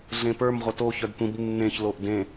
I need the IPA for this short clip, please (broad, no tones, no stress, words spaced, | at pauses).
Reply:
ɮẽpə˞m ʁʷʌto çœdtʷĩb nːẽç loʔdẽ